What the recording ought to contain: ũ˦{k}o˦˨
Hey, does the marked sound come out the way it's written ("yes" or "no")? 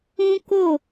yes